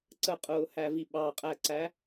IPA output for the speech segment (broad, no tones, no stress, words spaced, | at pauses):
ǀəqʼʊːhævi ɓɑqʼæǀæ